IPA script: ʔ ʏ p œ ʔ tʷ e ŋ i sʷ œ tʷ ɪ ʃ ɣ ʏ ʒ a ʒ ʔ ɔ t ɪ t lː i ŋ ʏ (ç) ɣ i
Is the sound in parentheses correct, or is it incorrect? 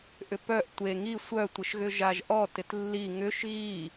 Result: incorrect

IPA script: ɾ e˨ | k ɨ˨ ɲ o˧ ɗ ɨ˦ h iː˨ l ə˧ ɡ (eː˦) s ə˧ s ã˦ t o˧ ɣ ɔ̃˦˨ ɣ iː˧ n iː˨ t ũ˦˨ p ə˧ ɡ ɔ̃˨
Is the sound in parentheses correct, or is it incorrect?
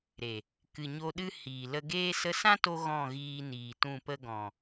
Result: correct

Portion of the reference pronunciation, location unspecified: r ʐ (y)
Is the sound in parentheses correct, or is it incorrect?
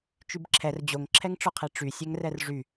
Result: correct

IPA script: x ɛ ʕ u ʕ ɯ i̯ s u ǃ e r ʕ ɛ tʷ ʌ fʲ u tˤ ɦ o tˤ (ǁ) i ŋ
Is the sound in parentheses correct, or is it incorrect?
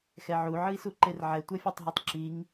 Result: correct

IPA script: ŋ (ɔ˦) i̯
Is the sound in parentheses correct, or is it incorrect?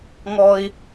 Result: correct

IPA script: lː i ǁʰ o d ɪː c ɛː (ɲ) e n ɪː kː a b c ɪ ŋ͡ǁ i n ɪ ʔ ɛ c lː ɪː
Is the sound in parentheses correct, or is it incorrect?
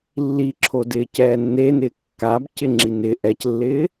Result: incorrect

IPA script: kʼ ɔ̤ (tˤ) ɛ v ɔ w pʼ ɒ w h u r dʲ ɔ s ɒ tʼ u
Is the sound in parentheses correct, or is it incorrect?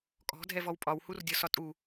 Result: incorrect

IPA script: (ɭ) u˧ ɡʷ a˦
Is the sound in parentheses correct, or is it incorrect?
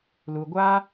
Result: incorrect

